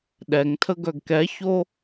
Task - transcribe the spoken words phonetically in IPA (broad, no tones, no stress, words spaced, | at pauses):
ɗɛŋtʰə ɡœɡkɛço